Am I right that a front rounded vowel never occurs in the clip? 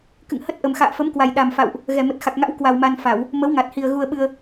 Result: yes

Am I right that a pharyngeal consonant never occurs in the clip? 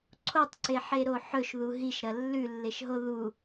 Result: no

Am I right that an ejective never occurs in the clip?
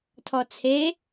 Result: yes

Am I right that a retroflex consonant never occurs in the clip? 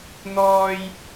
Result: yes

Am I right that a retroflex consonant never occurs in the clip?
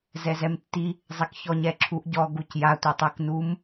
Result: yes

